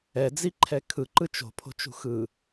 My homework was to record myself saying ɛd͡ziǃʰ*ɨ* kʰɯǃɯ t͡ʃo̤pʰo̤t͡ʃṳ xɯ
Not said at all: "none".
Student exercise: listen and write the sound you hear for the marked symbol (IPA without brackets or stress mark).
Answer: ɛ